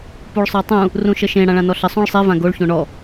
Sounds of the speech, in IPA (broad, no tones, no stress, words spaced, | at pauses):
puɭsˤə˞tˤũ | rũʃəʃẽ ɽãɭãnɔɬə sˤõɭsˤe vãɡoɭ çõɳɔ